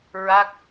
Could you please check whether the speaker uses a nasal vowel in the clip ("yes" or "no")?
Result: no